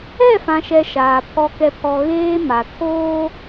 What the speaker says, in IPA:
ɛ˦˨ f ã˨ ʃ ɛ˨ ʃ aː˨ pʰ ɔ˨ k ɛ˨ pʰ ɔ˨ ɣ eː˦ m a˨ tʰ oː˦

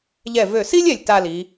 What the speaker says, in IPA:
ʎ ɛ˧˩ v ø˧˩ s i˥ lʲ ɛ˧˩ lʲ t a˥˧ l i˩˧

